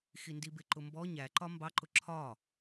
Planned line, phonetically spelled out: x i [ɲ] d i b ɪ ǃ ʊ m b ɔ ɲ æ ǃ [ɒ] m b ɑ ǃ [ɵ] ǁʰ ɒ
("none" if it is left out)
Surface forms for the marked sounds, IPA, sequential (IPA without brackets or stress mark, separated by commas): n, ɒ, ʊ